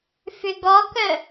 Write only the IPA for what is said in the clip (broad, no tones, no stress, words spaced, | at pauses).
fʏɡɔkœ